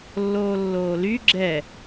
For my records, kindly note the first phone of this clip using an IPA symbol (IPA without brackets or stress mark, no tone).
lː